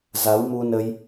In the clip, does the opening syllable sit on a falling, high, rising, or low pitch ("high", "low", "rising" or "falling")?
rising